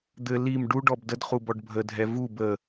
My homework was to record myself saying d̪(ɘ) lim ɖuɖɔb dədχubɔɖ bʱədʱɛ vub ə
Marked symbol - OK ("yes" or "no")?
yes